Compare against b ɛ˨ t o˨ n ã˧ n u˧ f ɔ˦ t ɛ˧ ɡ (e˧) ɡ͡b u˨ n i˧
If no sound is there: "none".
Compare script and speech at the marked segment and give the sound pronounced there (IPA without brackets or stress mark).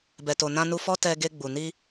e˧